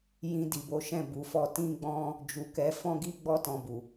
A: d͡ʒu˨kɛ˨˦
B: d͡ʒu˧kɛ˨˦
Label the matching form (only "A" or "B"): A